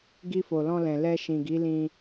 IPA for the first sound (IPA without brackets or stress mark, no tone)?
ɡ